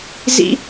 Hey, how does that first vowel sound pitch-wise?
high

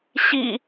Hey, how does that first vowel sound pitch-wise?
low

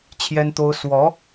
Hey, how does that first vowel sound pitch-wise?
high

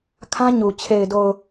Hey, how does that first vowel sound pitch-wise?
high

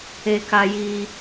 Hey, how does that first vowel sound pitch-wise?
high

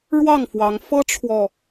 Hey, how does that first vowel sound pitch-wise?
falling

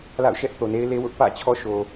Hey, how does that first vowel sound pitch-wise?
falling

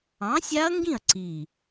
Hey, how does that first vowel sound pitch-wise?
rising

